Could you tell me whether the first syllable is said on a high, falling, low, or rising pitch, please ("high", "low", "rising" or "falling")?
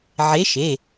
rising